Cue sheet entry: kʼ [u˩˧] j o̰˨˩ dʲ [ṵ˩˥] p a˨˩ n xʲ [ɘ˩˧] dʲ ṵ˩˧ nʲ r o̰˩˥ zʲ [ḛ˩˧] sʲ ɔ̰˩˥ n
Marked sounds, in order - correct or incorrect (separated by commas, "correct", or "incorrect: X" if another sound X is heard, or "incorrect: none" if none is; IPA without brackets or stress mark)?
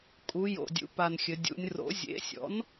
correct, correct, correct, incorrect: ḛ˩˥